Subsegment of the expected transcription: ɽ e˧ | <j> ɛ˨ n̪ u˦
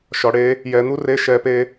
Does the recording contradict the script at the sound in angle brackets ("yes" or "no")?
no